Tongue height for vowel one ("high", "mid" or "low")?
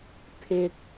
high